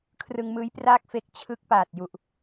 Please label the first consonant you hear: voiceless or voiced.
voiceless